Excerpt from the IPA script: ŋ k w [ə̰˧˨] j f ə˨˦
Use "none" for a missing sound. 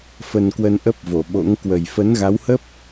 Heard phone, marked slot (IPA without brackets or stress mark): ə˨˩